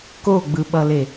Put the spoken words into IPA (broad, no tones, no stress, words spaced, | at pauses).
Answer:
koɡ͡bɯɓʌle